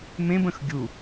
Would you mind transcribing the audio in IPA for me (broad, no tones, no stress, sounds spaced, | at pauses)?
m ẽ b ə̃ x ɡʲ u